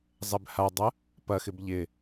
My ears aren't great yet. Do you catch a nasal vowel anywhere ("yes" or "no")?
no